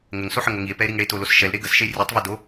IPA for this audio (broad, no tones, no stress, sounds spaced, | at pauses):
ŋ ə ŋ s o ħ ə ŋ o ŋ i e̯ p ɛ e̯ ɾ i ŋ ɽ e t o l o s ʃ ɛ l ɾ e ɡ ə s ʃ e rʲ e tˤ v ɛ d o